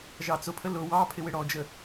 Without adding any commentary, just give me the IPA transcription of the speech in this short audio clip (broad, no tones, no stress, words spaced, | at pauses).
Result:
ʒɑt͡sʊpʰə lʊ wɑ pʰɪwɪɽɔd͡ʒə